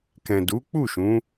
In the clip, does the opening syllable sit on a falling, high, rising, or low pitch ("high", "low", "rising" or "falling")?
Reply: low